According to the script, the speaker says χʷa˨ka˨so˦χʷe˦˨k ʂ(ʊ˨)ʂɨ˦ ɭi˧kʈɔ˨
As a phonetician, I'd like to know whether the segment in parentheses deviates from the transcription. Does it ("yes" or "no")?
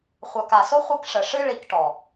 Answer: yes